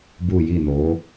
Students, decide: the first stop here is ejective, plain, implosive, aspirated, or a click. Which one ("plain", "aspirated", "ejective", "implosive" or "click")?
plain